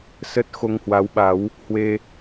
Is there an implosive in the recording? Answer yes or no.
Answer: yes